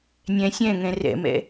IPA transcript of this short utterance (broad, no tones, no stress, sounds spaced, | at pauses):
nʲ ɛ̃ sʲ ɛ̃ ŋ ɛ̃ r ɛ̰ m ɛ̰